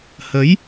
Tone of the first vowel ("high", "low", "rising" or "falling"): rising